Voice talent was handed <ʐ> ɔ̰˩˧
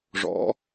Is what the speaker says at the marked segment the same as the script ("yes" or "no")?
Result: yes